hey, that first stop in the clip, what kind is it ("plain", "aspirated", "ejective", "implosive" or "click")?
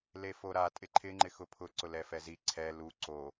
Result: ejective